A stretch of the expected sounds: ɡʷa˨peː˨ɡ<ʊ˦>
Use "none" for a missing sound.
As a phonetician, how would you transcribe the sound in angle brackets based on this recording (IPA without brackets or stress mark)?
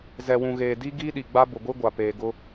ʊ˦